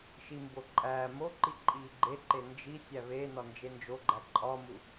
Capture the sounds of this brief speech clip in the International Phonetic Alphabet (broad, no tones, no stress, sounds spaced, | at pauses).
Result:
ʃ i m b o ǃʼ æː m o ǃ i ǃʼ iː ɡ͡ǃ e ǃ e n d͡ʒ i sʲ æ β e n ɒ n d͡ʒ e n d͡ʒ o ɡ͡ǃ æ ǃʼ ɒ m u